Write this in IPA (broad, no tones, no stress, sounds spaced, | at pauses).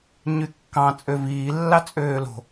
ɲ y kː ɑ̃ t͡sʼ ø v iː lː ɑ t͡sʼ øː l o̤